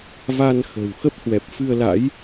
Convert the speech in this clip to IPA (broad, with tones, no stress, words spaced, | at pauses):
va˧nxə̤˨˩w xə˦˥p̚hwɛ˨˩p̚fɨ˧ə̯la̰˧˥j